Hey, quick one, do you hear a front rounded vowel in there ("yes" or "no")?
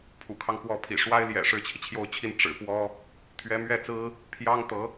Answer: no